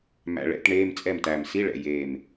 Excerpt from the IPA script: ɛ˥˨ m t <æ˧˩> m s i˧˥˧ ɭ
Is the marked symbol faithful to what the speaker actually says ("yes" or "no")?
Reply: yes